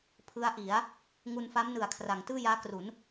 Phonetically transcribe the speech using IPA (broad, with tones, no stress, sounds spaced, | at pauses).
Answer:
pʰ ɯ˦˥ a̯ ʔ i˩˦ a̯ | ŋ u˧ n f a˦˥ m n ɯ˨˩ a̯ kʰ r a˩˦ ŋ t ɯː˥˩ j aː˦˥ k r u˩˦ n